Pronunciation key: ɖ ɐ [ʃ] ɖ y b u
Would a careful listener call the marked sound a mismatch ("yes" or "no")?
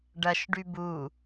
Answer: no